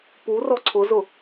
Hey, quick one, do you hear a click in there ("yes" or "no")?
yes